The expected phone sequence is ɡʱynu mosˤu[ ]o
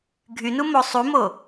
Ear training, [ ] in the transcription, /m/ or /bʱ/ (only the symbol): m